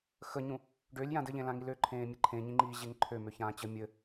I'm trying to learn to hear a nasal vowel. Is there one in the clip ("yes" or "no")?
yes